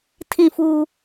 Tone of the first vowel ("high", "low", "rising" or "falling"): falling